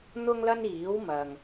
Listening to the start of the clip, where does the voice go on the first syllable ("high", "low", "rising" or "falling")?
high